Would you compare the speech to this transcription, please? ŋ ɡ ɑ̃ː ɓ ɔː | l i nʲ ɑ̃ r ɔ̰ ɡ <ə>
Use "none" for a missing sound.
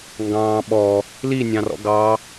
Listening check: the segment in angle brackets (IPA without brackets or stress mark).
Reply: ɑ